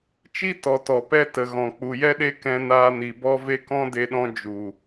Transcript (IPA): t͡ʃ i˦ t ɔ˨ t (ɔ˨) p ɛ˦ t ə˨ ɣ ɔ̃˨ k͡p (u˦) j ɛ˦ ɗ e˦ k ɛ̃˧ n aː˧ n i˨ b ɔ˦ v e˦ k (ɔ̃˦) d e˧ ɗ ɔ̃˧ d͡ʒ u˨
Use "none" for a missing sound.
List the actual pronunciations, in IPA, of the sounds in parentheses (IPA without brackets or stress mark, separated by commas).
ɔ˨, u˨, ɔ̃˦